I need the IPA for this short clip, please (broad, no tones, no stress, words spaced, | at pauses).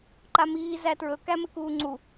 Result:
ǃamiː zætɹɵ kæmɘkuːŋ͡ǀu